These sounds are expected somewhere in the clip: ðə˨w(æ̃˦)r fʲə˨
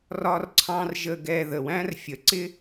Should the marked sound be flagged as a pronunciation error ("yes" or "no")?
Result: no